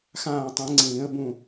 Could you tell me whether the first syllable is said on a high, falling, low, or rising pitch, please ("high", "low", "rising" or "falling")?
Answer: falling